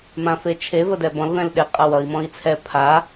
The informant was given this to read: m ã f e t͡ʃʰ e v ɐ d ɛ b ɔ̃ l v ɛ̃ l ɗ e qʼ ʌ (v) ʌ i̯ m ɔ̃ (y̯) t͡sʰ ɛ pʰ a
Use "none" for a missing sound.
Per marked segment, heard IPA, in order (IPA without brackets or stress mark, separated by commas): w, i̯